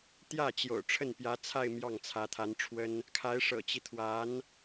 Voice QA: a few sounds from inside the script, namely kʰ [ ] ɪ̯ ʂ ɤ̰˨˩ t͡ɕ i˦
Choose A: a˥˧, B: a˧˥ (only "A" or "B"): B